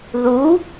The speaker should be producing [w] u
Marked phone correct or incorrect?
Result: incorrect